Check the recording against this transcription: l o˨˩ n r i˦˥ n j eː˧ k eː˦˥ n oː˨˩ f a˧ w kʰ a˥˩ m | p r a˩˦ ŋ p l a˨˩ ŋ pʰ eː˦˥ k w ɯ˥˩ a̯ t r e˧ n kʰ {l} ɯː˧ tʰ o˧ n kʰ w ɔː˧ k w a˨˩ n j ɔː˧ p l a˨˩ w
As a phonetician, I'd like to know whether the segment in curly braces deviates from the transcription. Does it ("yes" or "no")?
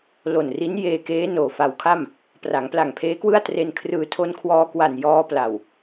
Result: yes